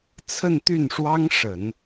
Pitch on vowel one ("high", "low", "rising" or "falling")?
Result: falling